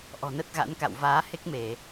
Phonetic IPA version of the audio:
ʔ ɔ̤˨˩ n ə˦˥ t̚ ɣ a̰˧˥ n k a̰˧˨ w v aː˨˦ h e˦˥ k̚ m e˧˩˨

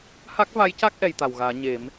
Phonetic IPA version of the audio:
h a˦˥ k̚ v a˧˥ j c a˦˥ k̚ ʔ ɛ˧ j t̪ a˨˩ w ɣ aː˨˩˦ ɲ e˨˩˦ m

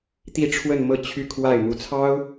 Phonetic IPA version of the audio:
t̪ i˥˧ ʈ͡ʂʰ w ə˥˧ n m ɤ˥˧ t͡ɕʰ y˥˧ kʰ w a˥˩ ɪ̯ m u˧˥ t͡sʰ ɑ˥ ʊ̯

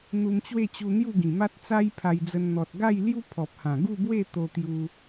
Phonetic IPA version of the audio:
n̪ u˧ m t͡ɕ w e˥˧ t͡ɕ u˧ n̪ j u˥˧ ɡ ĩ˨˩ m a˦ t̚ t͡s a˦ j pʰ a˧ j d͡z ə˧ n n̪ ɔ˨ t̚ ɡ a˥˧ j l j u˦ pʰ ɔ˨ p̚ h ã˨˩ ɡ u˥˧ b w e˥˧ t̪ o˧ t̪ j u˧

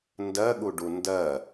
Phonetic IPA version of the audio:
n d ɜ ɠ u ɖ u n d ɜ

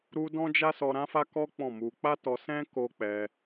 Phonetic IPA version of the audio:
ɾ u˦ d ɔ̃˦ d͡ʒ a˦ s ɔ˧ ɾ ã˦ f a˦ k ɔ˦ k͡p ɔ̃˦˨ m u˧ k͡p a˦ t ɔ˧ s ɛ̃˦ k o˦ k͡p ɛ˧

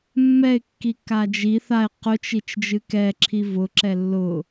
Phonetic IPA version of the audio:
mː ɛ ɪ̯ kː i kː a d͡ʒ i θ a ɪ̯ q ʊ t͡ʃ i t͡ʃ d͡ʒ ɨ k ɛ ǁʰ i v ʊ ǁ ɛ lː ʊ

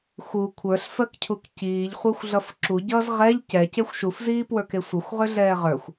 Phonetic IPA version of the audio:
x u kʷʰ ə˞ ɬ f ɜ k cʰ u k c iː ʎ χʷ ə˞ xʷ ɮ ʌ f ǁ u ɟ ʌː z ʁ ɛ ʎ c ɛ c e xʷ ʃ u f z iː p w ə˞ k e sʷ ə xʷ ʁ ʏ ɮ ɛː ʁ ə˞ xʷ

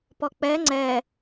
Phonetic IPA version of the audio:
p ɔ k͡p ɛ ŋ͡ǀ ɛ

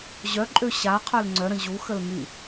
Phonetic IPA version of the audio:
ʑ œ ǃʼ ø ɕ a qʰ œ l ŋ͡ǀ œ ɾ ə̃ ʑ u x ə l m y

